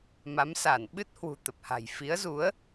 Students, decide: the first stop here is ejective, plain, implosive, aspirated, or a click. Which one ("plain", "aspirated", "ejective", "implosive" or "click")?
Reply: implosive